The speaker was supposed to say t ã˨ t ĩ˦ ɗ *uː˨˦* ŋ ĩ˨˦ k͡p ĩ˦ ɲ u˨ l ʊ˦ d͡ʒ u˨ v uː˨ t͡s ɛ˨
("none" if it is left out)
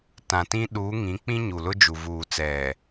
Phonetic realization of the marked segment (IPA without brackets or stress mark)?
uː˨˦